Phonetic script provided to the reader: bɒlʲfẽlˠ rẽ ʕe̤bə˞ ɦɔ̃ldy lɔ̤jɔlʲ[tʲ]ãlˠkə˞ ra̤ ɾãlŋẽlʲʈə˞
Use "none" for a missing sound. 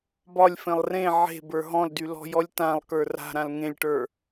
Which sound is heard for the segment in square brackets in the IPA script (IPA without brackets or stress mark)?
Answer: t